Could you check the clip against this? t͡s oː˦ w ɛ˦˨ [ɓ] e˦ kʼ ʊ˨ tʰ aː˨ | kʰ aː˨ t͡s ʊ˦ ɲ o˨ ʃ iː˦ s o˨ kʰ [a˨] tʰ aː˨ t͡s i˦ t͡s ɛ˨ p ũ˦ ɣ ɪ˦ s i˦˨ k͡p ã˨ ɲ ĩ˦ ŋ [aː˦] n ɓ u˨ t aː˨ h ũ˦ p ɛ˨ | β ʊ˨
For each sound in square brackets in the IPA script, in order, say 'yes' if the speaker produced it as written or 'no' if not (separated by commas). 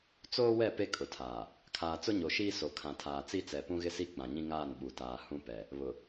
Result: no, no, no